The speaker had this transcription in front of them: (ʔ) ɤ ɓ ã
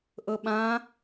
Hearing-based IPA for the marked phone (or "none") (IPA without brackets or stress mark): ʔ